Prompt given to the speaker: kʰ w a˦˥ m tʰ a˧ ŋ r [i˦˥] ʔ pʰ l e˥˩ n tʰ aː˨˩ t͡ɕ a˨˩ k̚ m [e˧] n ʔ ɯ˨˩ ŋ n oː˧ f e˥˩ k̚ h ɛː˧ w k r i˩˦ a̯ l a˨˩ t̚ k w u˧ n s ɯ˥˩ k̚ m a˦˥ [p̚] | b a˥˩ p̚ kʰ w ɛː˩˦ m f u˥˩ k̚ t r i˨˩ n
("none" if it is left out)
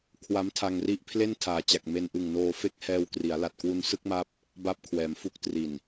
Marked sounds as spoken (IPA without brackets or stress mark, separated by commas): i˦˥, e˧, p̚